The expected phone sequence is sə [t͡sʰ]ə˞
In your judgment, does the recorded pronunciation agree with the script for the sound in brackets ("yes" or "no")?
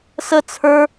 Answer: yes